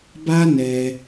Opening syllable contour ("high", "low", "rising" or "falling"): high